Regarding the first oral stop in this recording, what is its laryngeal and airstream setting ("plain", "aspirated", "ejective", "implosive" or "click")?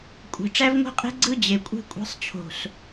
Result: ejective